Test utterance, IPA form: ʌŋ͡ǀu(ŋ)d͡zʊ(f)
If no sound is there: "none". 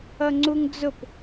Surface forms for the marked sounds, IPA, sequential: ŋ, p

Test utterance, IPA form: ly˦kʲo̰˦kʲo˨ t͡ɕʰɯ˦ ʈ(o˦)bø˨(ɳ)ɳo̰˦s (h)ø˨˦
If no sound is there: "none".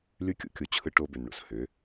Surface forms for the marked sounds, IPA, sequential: o˦, n, h

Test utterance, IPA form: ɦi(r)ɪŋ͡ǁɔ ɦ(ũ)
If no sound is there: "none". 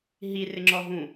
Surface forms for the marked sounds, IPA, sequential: r, ũ

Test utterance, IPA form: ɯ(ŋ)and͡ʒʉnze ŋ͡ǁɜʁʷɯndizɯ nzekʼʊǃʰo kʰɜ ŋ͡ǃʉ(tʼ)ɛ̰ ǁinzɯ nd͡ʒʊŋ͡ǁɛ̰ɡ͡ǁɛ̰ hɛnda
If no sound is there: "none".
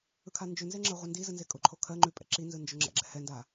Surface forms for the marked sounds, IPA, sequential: kʰ, pʼ

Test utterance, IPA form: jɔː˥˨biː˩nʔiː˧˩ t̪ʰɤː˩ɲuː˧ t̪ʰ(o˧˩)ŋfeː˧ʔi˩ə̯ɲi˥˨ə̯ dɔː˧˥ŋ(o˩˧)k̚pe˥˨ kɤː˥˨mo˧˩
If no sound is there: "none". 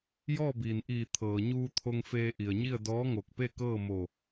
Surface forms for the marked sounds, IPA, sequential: o˧, o˧˩

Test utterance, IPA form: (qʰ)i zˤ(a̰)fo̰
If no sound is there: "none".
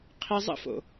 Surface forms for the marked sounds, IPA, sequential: qʰ, ə̰

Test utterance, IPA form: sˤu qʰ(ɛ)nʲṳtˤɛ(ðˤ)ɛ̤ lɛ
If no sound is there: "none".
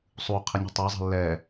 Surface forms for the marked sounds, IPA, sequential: ɪ, zˤ

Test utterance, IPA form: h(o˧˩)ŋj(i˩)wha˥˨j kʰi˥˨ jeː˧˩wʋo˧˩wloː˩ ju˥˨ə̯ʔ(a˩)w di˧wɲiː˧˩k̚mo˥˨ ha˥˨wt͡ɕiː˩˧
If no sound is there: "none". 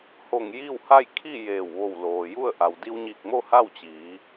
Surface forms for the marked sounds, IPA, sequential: o˧˩, i˥˨, a˩

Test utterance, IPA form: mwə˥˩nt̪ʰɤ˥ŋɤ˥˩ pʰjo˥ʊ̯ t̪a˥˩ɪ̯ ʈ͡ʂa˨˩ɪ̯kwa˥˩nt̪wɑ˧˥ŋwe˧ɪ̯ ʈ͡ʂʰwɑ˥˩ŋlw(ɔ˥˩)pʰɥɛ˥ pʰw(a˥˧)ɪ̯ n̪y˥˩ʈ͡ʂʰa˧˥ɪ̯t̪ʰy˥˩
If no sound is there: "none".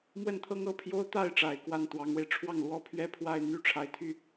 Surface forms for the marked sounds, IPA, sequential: ɔ˥, a˥˧

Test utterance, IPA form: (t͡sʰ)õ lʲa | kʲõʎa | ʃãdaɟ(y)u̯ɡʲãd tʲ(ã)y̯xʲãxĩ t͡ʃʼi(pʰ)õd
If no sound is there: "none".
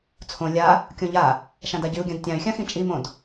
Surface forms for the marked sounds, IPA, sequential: t͡sʰ, y, ã, m

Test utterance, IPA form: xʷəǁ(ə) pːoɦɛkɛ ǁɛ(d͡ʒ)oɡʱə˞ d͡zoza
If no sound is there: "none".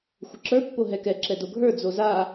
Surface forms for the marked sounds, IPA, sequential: ə˞, d

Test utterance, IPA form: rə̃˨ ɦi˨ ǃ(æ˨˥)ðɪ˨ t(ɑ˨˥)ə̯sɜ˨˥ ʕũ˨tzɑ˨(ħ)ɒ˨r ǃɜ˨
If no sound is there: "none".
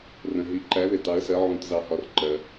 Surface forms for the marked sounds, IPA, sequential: æ˨˥, ɑ˨˥, h

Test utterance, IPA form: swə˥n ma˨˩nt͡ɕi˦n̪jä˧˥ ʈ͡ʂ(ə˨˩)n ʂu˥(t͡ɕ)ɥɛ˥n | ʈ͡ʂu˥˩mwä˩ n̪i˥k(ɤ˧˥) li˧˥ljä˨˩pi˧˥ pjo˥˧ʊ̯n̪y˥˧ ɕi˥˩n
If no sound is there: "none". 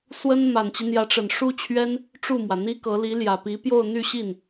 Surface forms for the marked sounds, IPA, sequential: ə˨˩, t͡ɕʰ, ɤ˧˥

